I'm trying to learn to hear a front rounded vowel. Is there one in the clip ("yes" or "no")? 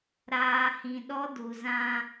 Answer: no